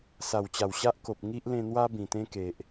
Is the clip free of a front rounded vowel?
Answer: yes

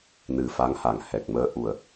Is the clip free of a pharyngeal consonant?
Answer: yes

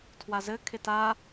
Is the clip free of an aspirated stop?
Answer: no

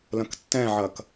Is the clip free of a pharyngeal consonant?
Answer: no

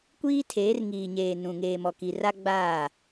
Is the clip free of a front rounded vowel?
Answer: yes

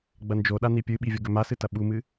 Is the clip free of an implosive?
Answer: no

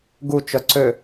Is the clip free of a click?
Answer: no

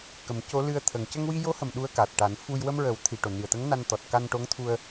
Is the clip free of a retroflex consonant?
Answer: no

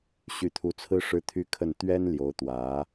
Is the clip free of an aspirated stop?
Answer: no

